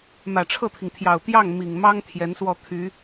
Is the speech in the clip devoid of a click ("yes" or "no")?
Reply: yes